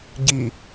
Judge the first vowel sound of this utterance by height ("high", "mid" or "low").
high